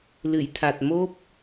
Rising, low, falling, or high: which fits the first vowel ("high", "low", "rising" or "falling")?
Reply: low